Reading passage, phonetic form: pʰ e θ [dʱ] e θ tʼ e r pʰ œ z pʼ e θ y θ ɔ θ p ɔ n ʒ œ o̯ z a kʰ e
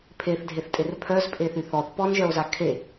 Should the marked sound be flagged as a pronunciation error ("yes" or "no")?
no